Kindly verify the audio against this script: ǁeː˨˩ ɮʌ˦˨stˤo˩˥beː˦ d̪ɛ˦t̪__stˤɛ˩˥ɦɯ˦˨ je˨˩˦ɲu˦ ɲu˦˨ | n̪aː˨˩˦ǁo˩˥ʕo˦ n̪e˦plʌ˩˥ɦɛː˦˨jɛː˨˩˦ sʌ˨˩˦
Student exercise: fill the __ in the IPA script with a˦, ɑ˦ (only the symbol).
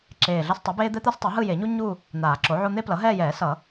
a˦